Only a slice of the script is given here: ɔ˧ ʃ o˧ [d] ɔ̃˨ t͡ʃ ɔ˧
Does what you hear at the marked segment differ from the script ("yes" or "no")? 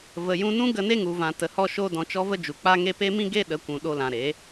no